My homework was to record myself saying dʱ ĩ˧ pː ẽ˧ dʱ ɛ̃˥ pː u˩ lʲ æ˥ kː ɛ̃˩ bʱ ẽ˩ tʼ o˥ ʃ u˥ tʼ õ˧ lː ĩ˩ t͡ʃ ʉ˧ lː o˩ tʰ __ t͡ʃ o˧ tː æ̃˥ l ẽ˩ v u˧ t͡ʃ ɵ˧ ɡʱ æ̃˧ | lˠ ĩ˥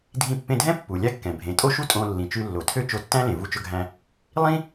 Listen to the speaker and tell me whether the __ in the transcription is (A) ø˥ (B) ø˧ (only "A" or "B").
A